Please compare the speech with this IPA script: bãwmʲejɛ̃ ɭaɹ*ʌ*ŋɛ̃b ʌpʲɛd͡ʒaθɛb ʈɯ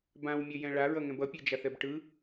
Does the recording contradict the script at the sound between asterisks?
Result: no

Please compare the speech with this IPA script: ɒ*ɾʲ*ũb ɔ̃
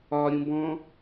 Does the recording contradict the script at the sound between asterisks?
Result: no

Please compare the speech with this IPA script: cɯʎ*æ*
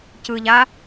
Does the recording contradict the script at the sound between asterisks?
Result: yes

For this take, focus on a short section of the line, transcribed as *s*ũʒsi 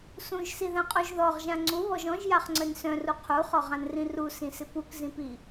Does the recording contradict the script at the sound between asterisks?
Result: no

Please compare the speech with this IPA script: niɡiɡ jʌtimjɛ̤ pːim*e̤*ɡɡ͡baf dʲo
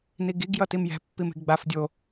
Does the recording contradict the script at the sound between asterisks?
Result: no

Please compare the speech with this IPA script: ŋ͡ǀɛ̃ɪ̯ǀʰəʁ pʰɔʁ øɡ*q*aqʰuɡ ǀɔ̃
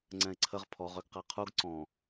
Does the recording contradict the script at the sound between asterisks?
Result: no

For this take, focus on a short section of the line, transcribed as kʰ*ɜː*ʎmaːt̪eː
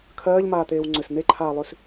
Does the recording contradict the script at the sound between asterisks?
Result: no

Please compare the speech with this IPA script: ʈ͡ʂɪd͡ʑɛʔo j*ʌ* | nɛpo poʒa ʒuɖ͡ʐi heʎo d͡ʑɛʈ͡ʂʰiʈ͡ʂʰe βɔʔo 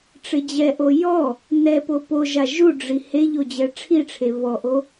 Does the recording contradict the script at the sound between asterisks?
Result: yes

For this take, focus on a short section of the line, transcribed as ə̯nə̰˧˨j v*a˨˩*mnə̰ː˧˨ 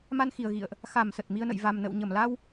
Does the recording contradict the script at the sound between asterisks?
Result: no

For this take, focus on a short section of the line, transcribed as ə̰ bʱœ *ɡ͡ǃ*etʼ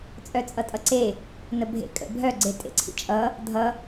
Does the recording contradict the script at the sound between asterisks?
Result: yes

